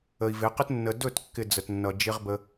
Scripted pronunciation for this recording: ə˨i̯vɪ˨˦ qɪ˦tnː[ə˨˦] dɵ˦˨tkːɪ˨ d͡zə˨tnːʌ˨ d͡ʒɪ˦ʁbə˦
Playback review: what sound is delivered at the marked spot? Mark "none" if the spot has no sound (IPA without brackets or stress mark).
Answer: ə˨